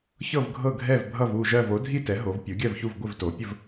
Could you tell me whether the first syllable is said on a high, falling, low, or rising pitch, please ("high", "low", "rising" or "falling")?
falling